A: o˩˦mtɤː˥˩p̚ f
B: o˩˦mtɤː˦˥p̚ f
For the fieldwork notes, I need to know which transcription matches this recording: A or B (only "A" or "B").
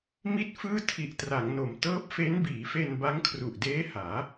B